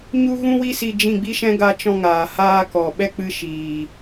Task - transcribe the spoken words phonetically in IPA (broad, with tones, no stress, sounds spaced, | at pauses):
ɲ u˦ ɣ ũ˦ w i˦ s i˧ d͡ʒ ĩ˦˨ ɡ͡b i˦ ʃ ɛ̃˦ ɡ a˧ t͡ʃ ɔ̃˧ ŋ aː˨ h aː˧ k ɔ˨ ɓ ɛ˦ k͡p ɨ˧ ʃ iː˨